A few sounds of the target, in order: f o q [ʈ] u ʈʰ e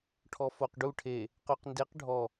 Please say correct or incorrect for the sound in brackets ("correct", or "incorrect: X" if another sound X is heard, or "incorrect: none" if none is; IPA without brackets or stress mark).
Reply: incorrect: ɖ